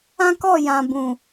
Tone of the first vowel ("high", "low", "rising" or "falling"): high